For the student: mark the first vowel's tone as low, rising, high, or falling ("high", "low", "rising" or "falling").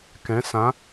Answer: rising